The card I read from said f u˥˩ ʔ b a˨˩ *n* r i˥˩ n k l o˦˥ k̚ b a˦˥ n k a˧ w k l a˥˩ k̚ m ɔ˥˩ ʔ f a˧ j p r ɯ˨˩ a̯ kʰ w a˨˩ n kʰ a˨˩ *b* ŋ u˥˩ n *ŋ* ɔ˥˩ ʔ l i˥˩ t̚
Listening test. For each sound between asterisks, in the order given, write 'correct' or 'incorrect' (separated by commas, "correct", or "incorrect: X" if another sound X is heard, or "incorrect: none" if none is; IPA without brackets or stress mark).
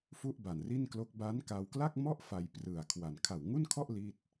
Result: correct, incorrect: w, incorrect: kʰ